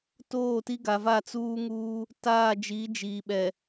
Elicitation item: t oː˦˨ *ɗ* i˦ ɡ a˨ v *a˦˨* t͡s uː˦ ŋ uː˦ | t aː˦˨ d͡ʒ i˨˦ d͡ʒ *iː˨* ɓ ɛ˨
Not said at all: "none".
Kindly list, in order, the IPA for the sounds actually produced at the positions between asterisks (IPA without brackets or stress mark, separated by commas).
t, a˦˨, iː˨